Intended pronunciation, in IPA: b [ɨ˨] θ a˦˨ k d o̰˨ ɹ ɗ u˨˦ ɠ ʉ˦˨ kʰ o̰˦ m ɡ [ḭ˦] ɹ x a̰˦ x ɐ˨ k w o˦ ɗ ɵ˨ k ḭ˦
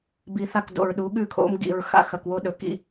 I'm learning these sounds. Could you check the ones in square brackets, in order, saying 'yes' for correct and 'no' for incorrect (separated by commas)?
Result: no, no